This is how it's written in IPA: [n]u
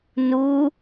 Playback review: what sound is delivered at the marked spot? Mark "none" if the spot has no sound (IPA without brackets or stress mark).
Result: n